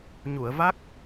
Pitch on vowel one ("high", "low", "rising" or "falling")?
low